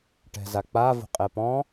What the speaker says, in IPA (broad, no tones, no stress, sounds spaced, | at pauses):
ʈ ɛ̤ z a k͡p a v o̤ qʼ ɛ p ɔ̃